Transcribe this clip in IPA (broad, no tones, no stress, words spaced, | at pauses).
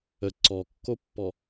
ə ǀɔkːopːɔ